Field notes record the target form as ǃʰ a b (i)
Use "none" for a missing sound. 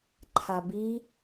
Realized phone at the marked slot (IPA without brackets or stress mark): i